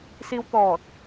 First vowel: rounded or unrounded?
unrounded